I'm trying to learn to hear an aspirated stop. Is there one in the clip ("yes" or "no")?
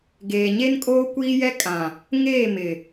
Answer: no